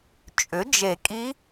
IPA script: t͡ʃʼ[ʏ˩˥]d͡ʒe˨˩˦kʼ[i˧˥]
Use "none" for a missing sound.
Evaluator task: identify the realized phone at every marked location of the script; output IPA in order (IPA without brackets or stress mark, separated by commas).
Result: ʏ˩˥, i˧˥